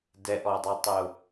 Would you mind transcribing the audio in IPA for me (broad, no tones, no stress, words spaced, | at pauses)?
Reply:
dɛʔɔdˤotˤɯʊ̯